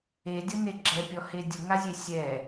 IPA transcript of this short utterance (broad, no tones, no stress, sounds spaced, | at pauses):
e dʲ ʌ n e ɡ͡ǁ ɛ pʲ ɔ h e dʲ ʊ ŋ a zʲ e sʲ ɛ